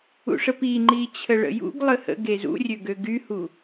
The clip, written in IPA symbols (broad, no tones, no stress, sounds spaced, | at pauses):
ṵ ʂ ə p i ŋ͡ǃ i t͡ɕʰ ə ɭ ə̰ j ṵ ɡ lˠ ə h ə̰ ɡ e z ṵ rʲ ø ɡ ø ɡ y h u